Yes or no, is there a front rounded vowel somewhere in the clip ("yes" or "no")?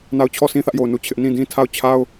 no